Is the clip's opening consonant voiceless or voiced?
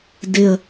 voiced